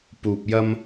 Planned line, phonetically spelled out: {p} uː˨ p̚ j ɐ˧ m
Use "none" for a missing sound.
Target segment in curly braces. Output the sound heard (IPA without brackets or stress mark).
p